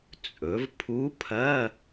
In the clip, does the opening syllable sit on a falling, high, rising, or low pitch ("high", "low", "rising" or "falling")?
rising